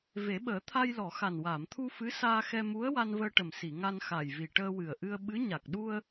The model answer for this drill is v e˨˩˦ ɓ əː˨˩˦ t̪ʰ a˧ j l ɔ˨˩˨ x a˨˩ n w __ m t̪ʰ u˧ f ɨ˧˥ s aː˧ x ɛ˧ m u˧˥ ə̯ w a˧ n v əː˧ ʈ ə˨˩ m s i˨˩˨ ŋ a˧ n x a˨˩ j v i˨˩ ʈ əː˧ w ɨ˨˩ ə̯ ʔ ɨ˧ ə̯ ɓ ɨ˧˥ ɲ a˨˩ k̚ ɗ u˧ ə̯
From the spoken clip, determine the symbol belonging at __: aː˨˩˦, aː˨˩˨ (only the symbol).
aː˨˩˨